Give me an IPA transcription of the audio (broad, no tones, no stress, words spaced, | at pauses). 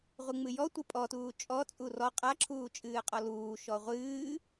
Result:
ʁʷɨŋ͡mɨjɔtʷɨ pʼɔtuː t͡ʃʼɔt͡sʼu rɔ qʼaǁʰuː t͡ʃʼɨːqʼɔluːʃɔ ʁʷɨː